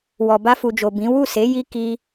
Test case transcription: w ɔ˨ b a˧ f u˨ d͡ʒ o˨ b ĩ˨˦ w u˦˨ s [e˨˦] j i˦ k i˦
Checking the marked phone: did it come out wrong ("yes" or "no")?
no